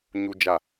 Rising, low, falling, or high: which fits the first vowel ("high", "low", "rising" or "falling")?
low